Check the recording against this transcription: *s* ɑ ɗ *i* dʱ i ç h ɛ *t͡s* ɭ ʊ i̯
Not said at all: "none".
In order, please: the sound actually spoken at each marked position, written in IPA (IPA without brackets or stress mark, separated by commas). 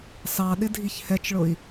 s, ɪ, t͡ʃ